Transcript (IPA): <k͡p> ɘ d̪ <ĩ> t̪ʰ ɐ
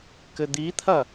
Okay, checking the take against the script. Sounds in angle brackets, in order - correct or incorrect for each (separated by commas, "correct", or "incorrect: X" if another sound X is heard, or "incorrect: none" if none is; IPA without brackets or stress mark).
incorrect: k, incorrect: i